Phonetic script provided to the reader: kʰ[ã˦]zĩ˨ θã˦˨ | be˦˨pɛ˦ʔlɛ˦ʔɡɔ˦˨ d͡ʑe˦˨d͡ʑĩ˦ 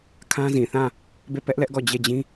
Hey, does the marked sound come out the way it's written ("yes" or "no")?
yes